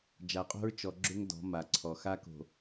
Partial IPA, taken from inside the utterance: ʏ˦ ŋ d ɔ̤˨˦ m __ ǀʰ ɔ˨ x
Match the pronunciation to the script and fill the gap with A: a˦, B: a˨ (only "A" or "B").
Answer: B